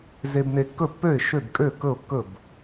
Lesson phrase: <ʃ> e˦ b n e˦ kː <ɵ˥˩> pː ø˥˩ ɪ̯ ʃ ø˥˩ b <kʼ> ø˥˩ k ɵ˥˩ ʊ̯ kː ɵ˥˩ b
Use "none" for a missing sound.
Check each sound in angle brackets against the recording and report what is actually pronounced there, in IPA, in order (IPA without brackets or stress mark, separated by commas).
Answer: z, ɵ˥˩, kʼ